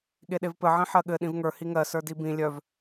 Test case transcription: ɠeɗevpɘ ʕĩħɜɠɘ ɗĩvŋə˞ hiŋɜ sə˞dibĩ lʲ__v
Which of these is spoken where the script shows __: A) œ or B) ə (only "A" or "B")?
A